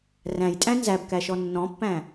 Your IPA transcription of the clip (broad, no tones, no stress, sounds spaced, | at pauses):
r æ̃ j tʼ æ̃ n z æ b k æ ʃ ɔ nː ɔ̃ pː æ̃